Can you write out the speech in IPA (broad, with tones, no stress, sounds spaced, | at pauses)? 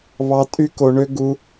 β ɑ˦ tʼ y˦ k o˧ ɳ ø˦ ɡ u˦